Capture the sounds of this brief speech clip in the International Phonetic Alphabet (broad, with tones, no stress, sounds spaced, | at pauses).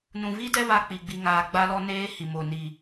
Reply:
n ũ˨ v i˦ d ɛ˦ β a˦ k͡p i˨ ɡ͡b i˨ ŋ aː˨ ɡ͡b a˦ l ɔ˦ n eː˦ h i˨ m o˨ n i˨